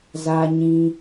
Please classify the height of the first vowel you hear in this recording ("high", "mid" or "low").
low